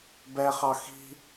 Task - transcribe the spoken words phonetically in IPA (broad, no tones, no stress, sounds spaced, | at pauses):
b ɛ χ ɑ x i̤